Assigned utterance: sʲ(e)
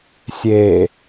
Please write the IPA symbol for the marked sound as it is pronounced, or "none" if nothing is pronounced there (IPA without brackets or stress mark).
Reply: e